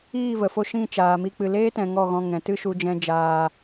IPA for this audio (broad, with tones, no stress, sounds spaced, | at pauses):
iː˦˨ v ə˨ f o˧ ʃ ĩ˦˨ t͡ʃ aː˨ m i˧ k͡p ɨ˨ l eː˦ t ɛ̃˧ ŋ ɔ˦˨ ɣ ɔ̃˧ ŋ ɛ̃˨ t ɨ˦ ʃ u˧ d͡ʒ ɛ̃˦ d͡ʒ aː˧